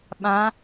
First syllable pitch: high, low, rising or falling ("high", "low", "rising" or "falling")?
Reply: rising